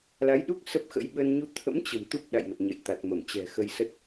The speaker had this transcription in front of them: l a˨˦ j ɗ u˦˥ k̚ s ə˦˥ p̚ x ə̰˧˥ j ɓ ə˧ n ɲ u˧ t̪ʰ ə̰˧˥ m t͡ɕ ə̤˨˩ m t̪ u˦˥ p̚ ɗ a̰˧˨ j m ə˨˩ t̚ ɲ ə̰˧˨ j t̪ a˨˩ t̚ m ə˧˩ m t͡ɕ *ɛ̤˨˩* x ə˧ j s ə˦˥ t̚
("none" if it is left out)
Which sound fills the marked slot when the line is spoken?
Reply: ɛ̤˨˩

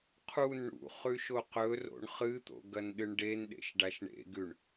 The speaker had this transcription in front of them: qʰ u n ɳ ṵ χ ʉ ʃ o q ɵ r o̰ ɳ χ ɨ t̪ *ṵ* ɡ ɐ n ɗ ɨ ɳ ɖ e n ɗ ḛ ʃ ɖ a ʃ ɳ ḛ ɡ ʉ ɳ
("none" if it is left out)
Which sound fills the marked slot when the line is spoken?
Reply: o̰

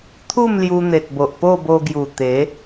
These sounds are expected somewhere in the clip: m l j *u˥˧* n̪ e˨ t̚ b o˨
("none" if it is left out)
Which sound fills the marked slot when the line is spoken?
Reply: u˧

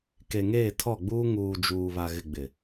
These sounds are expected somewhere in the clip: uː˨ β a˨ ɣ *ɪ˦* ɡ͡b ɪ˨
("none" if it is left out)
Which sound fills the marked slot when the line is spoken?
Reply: ɪ˨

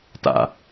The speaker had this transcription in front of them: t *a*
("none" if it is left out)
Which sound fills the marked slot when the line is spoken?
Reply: a̰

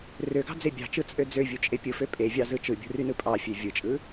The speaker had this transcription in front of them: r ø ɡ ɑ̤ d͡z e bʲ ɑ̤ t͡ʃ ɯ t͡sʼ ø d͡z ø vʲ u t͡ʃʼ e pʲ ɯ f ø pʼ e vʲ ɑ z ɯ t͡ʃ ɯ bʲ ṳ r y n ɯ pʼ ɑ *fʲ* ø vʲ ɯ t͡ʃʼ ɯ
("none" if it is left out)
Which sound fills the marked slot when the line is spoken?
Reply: fʲ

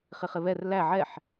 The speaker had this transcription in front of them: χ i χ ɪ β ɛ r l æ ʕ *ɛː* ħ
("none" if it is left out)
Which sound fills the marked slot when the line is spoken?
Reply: ɛ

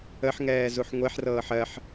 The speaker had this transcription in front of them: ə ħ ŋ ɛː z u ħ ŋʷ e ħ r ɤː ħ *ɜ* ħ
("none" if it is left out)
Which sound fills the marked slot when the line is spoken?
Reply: ɜ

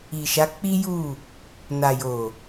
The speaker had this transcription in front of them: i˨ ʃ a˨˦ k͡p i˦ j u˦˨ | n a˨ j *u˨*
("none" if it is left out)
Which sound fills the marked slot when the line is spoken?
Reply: o˨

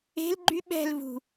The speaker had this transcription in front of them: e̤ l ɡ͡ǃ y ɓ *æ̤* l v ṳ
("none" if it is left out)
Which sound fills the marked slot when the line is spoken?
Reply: ɛ̤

